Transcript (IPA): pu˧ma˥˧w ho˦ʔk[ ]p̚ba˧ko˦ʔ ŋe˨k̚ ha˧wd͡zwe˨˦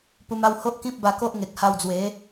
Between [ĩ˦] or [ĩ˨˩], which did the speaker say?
ĩ˦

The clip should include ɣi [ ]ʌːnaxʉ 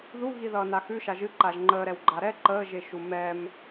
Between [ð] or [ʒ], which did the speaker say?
ð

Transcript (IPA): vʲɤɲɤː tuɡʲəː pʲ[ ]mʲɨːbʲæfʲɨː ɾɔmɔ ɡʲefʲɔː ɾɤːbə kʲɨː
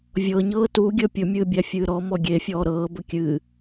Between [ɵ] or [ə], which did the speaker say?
ɵ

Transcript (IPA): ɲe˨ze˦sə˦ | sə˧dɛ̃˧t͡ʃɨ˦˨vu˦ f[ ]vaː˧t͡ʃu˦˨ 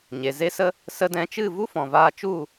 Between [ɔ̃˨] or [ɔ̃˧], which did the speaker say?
ɔ̃˨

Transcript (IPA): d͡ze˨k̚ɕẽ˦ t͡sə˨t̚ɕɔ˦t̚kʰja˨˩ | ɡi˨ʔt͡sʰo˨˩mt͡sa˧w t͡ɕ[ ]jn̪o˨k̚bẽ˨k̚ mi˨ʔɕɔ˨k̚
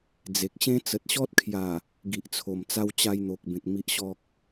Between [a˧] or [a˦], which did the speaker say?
a˧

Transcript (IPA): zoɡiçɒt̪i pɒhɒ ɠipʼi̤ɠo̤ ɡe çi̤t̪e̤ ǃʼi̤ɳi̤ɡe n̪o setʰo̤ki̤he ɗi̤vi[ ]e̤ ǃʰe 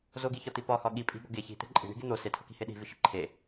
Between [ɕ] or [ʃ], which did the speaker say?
ʃ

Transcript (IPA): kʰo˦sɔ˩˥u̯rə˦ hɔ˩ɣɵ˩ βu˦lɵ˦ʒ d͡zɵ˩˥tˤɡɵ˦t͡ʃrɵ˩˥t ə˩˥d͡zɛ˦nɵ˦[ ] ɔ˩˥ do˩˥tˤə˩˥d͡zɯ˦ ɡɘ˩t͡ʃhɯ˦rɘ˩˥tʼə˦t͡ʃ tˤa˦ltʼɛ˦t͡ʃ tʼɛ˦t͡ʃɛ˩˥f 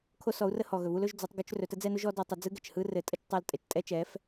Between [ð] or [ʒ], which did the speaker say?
ʒ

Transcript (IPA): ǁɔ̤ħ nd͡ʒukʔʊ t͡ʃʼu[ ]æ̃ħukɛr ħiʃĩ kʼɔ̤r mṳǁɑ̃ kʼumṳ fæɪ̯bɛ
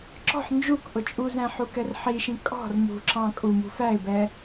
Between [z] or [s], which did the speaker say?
z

